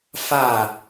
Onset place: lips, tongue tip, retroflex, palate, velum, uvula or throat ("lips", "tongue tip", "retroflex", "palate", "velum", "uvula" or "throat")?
lips